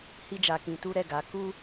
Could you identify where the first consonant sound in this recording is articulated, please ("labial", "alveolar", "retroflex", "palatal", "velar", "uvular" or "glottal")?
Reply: glottal